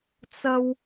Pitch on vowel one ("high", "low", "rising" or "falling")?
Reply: high